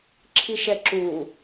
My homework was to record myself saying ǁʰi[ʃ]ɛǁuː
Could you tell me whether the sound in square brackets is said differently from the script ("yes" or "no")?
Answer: no